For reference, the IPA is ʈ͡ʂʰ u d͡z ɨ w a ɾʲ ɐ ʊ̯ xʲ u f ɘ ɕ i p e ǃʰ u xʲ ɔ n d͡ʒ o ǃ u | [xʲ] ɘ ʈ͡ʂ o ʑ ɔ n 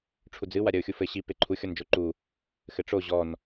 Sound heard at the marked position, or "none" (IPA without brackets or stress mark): x